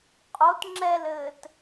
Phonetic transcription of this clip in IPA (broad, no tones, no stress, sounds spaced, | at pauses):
qʼ o t ŋ͡ǁ ɛ l ɘː t